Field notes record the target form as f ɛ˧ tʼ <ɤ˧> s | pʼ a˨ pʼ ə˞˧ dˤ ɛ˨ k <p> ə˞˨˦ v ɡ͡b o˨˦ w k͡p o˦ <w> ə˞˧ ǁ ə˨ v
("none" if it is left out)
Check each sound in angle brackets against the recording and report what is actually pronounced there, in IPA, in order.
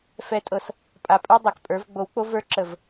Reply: ɤ˧, pʼ, v

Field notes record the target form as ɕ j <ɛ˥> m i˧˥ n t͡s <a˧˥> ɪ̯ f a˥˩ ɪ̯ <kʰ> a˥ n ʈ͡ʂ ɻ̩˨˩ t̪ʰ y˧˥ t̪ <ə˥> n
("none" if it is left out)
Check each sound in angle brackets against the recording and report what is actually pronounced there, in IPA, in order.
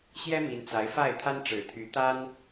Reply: ɛ˥, a˧˥, t̪ʰ, a˥

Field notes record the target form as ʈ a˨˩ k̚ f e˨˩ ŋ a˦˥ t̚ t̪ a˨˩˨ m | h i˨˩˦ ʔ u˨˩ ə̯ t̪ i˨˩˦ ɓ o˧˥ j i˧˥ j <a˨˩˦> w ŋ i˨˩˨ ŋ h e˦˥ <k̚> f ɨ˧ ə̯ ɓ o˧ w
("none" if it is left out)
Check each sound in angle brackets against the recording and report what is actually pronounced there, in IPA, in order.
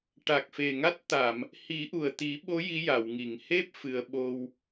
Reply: a˨˩˨, p̚

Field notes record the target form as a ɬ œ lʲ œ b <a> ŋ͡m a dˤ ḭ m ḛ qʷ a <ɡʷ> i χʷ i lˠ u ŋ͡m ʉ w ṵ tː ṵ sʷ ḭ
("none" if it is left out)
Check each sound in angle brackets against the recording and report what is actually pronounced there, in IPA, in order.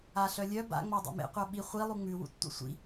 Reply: a̰, ɓ

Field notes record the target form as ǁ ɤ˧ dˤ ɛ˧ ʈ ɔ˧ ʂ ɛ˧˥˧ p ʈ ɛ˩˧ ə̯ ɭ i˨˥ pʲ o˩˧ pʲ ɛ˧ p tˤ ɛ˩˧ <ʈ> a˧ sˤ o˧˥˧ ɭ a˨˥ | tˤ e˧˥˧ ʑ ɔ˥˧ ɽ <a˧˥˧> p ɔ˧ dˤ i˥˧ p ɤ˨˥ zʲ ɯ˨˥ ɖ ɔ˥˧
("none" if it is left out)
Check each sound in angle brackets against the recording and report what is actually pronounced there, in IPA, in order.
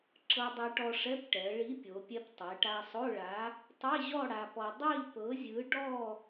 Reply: ʈ, a˧

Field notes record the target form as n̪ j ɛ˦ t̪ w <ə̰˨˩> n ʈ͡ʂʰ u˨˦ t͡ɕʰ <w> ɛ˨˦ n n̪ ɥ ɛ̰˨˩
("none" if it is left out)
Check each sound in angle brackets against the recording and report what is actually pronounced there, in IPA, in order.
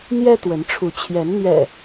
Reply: ə˨˦, j

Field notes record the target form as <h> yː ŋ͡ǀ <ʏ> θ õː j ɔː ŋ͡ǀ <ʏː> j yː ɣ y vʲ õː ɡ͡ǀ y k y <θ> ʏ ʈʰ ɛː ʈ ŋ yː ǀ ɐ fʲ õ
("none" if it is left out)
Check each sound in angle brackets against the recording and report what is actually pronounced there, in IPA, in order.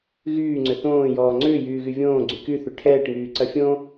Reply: ɣ, ʏ, ʏː, θ

